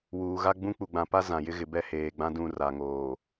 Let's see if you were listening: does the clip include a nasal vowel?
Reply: yes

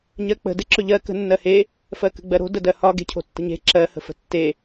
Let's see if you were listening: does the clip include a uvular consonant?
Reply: no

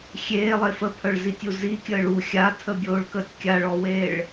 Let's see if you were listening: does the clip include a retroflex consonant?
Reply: yes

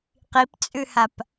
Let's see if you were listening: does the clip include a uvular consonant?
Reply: yes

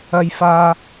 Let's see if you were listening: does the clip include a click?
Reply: no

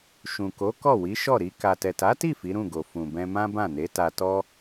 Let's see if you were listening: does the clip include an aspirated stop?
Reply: no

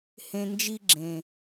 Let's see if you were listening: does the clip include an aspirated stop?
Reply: no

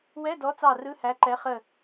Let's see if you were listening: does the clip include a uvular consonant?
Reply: yes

